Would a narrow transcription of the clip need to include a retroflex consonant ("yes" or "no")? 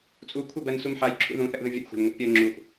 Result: no